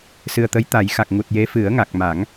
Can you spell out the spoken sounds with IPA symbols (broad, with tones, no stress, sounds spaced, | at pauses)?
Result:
s ɨ˨˩ ə̯ t̪ ə˧˥ j t̪ a˨˩˦ j x a˨˩ k̚ ŋ u˨˩ t̚ j e˧˥ f ɨ˨˩˦ ə̯ ŋ a˨˩ k̚ m a˨˩˦ ŋ